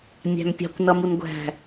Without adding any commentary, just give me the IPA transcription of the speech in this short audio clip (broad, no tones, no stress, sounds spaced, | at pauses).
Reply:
mʲ æ̤ m pʲ ɑ̤ kʷ n ʌ m u n ɡʷ æ̤